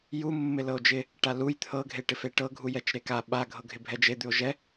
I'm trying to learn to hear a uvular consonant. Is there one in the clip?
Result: no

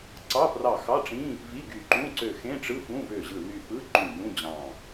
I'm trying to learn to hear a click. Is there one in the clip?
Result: yes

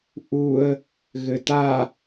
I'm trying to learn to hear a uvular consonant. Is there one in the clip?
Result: no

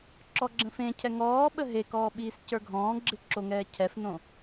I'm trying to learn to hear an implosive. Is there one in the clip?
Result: yes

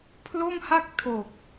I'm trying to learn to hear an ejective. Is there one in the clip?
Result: no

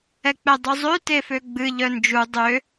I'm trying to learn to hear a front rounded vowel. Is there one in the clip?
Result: yes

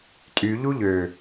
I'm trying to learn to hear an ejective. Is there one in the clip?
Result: yes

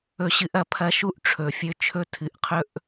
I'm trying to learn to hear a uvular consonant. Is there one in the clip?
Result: yes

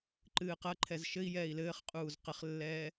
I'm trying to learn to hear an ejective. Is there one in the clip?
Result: yes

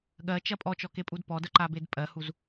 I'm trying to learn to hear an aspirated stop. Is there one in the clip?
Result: no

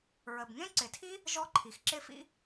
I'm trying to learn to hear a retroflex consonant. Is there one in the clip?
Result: no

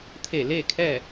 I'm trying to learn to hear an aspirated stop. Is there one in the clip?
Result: yes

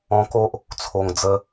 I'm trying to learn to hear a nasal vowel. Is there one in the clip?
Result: yes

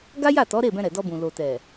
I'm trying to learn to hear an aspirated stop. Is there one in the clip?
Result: no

